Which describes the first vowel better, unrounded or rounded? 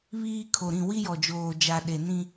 unrounded